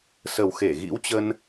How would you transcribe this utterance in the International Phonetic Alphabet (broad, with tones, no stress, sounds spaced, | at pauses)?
s ə˨˩ w x e˧˩ ɣ ḭ˧˥ w t͡ɕ ə˧ n